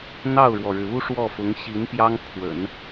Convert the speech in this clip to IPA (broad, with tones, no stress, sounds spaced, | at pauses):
n̪ ɑ˥˩ ʊ̯ ɻ w ɔ˩ ɻ ɻ̩˩ u˥ ʂ w ɔ˥˩ f ʊ˧˥ ŋ ɕ i˧˥ n p j ɑ˥ ŋ pʰ w ə̰˨˩˦ n